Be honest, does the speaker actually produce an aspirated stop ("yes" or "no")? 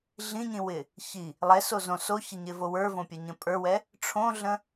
yes